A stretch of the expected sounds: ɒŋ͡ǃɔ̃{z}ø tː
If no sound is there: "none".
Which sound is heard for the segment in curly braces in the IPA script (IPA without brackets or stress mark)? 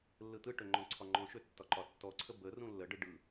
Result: ʃ